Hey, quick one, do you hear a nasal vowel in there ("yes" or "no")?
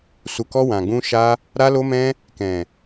yes